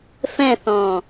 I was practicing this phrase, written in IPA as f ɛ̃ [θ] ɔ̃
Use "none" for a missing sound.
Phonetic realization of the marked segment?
θ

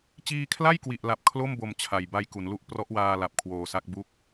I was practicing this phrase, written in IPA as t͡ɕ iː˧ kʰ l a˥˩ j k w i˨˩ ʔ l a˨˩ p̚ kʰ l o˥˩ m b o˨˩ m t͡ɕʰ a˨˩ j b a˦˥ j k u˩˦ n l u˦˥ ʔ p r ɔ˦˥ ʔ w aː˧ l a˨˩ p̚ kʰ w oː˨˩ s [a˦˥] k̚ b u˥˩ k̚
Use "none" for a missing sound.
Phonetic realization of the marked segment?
a˦˥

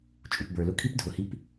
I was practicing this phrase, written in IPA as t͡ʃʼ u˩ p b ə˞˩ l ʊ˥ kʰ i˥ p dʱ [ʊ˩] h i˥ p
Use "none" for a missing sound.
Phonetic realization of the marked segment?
ʊ˩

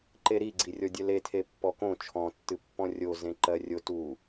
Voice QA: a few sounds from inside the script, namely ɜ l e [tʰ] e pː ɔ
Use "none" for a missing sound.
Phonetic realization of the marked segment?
tʰ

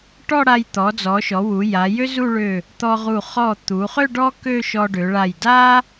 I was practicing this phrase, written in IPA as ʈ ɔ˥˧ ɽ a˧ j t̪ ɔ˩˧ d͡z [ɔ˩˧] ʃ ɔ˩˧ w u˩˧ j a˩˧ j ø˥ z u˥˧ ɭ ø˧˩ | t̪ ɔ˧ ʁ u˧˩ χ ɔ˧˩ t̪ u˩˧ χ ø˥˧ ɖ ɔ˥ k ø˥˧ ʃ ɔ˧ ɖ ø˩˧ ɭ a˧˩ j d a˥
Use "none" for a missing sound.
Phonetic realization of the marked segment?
ɔ˩˧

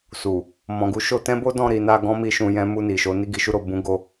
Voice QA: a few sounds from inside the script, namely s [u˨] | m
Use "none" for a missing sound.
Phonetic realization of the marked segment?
u˨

